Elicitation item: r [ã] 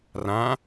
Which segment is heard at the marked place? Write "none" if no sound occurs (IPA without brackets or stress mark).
ã